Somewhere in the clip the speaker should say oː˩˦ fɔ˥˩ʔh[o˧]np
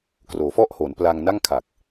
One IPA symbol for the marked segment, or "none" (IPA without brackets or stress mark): o˩˦